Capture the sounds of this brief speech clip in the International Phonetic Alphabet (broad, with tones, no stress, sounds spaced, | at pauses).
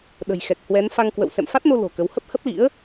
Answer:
ɗ ə̤˨˩ j x ɛ˨˩ k̚ h w ɛ˨˦ n f a˧ ŋ k w ə̰˧˨ w s ɛ̰˧˨ m f a˦˥ t̚ n o˧ l o̤˨˩ k ə˨˦ w h ə˦˥ p̚ h ə˦˥ p̚ l ḭ˧˥ ə̯